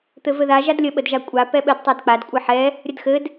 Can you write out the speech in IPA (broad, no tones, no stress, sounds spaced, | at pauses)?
t̪ ɘ v ɘ ð a ʒ a d lʲ ə ɓ ə d ʒ a kʷʼ a p ɛ ɓ ɘ d tˤ a d k͡p a d kʷʼ ɘ ħ ɛ | ɾʲ ə d x ɘ d